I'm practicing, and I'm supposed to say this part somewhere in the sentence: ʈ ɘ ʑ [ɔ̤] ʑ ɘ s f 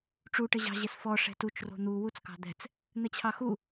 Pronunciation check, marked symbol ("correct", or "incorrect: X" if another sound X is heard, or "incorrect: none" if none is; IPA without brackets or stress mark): incorrect: ɑ̤